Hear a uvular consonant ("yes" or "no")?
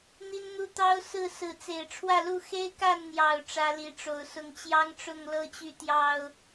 no